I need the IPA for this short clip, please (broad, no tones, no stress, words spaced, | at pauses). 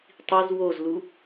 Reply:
tˤiz wozlu